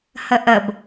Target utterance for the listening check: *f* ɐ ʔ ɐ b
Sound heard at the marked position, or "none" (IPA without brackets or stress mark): h